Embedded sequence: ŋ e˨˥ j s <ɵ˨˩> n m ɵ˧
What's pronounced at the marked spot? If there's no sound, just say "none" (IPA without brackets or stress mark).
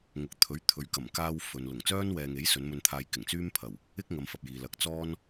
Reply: ɵ˨˧